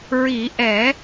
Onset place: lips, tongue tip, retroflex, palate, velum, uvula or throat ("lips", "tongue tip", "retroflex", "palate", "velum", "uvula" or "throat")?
tongue tip